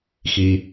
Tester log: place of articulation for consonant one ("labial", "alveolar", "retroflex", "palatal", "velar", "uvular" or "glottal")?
velar